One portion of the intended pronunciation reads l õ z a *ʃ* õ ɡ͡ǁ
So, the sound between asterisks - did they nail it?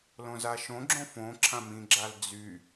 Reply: yes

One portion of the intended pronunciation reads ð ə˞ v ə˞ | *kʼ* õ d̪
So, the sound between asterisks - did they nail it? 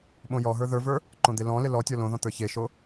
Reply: no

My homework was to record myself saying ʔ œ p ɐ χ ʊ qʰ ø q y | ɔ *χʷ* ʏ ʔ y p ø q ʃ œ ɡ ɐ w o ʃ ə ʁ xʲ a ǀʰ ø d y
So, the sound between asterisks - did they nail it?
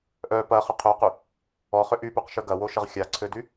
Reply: no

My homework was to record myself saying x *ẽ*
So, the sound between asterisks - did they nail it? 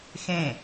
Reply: yes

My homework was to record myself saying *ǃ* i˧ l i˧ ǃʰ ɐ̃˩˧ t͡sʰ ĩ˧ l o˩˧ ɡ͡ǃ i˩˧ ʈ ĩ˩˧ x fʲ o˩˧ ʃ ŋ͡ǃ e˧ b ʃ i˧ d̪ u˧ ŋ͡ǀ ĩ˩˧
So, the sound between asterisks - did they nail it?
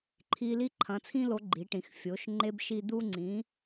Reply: no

